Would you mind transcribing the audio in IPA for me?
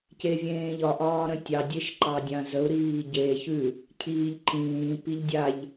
c e vʲ ẽː ʎ ɒ ʔ ɒː ɾ ə̃ tʲ ɑ dʲ e ʃ ǃ ɑ dʲ ã z ə u̯ ɾ iː ɟ e ç ʉ | cʰ iː ʎ ǃ ĩː p i ʎ dʲ a ʎ

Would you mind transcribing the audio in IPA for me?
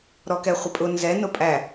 ɾ ɔ k ɛ χʷ ɪ pʼ ʊ n z ɛ n ʊ pʼ æ

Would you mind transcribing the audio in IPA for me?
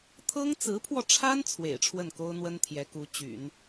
t̪ʰ ɤ˥ ŋ t͡s ɹ̩˧˥ pʰ w ɔ˧ ʈ͡ʂʰ a˥ n t͡sʰ w ḛ˨˩ ɪ̯ ʈ͡ʂʰ w ə˥˩ n k o˥ ʊ̯ n̪ w ə˥ n t̪ʰ j ɛ˧˥ k u˧˥ t͡ɕ y̰˨˩˦ n

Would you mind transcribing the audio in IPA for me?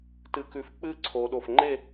t ɨ˧˩ k ʉ˧˩ f k͡p ɨ˥˧ ǀʰ o˩˧ ɗ o˧˩ f ŋ͡ǃ e˥˧

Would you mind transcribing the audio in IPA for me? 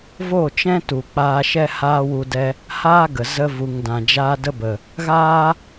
v o˦˨ t͡ʃ ɛ̃˦ t u˨ k͡p aː˧ ʃ ɛ˦ h aː˦ w u˧ d ɛ˧ | h aː˦ ɡ ə˨ z ə˧ v u˨ ŋ d ã˨ d͡ʒ aː˧ d ə˦ b ə˨ | ɣ aː˦

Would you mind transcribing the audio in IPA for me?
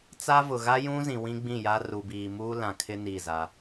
t͡s a˦ v ʊ˨ ɣ a˦ j ũ˦ z ĩ˨ w ĩ˦ ɡ͡b ĩ˦˨ j a˦ r u˨ b iː˨ m uː˦ l ã˨ kʰ ɪ˦ n i˦˨ z a˦

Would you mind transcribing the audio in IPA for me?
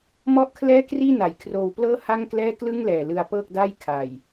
m ɔ˥˩ ʔ kʰ l ɛː˥˩ k r iː˥˩ n a˨˩ j kʰ r oː˧ w p l ɤː˥˩ h a˥˩ ŋ k l ɛː˥˩ k l ɯ˥˩ ŋ l ɛː˨˩ l ɯ˧ a̯ p ɤː˥˩ k̚ d a˥˩ j kʰ a˨˩ j

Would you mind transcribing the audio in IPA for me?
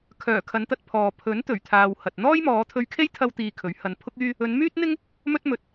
kʰ œː˨˩ kʰ ɐ˨˧ n t̪ ɐ˧ t̚ pʰ ɔː˨ pʰ ɵ˨˥ n t̪ ɵ˨˩ ɥ t̪ʰ aː˨ w h ɐ˨ t̚ n̪ ɔː˥ j m ɔː˨˧ t̪ʰ ɵ˧ ɥ kʰ e˥ j t̪ʰ ɐ˥ w t̪ iː˧ kʰ ɵ˨˥ ɥ h ɐ˨˧ n pʰ ʊ˥ k̚ yː˥ | ɵ˨˧ n m yː˥ t̚ n̪ ɪ˥ ŋ | m ɵ˥ t̚ m ɵ˨ t̚

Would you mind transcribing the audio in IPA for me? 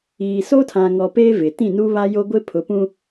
iː˨ s oː˦ tʰ ã˨ ŋ ɔ˨ p eː˦ v ɪ˨ t ĩ˦˨ n u˦ β a˦ j o˦ ɡʷ ɪ˦ pʰ ʊ˨˦ p ũ˦

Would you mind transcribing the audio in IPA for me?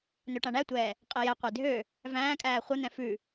n ø ʈ ã ɳ æ tʷ ɛː | qʼ e j ɛ qʷ e dʱ ø | v æ̃ː kʼ æː χʷ ɘ n̪ ɛ̃ f ʉ

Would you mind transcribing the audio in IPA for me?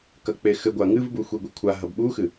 k ɐ k͡p e x ɘ ɡʷ a ŋ ɨ v b u xʷ i ɡʷ i kʷʰ a ɦ ɐ b ɓ u x ɨ

